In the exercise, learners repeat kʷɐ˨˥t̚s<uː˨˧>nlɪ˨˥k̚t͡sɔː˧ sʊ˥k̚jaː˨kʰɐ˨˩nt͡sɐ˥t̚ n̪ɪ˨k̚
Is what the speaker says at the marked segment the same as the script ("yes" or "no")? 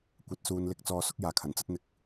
yes